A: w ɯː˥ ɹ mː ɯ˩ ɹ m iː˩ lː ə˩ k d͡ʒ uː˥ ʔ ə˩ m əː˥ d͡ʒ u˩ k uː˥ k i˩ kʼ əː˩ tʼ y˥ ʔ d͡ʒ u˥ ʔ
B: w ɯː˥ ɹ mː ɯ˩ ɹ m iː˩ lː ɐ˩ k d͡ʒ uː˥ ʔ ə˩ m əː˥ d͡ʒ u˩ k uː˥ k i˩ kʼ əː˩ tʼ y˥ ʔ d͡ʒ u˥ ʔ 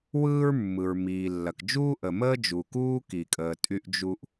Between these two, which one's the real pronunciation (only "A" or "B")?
B